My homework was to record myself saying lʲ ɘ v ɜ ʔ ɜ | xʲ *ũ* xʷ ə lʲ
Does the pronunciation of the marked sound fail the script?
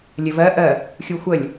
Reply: yes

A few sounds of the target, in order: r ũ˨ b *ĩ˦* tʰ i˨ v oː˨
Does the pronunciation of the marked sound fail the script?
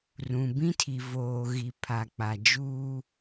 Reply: no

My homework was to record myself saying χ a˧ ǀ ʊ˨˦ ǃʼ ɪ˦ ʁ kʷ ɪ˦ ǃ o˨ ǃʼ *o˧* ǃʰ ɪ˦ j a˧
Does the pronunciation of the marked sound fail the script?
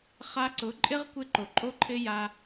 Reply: yes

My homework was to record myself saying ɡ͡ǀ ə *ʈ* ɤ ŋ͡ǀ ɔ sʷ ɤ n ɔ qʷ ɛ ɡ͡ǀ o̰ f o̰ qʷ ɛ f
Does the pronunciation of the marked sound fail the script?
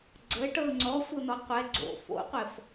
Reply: no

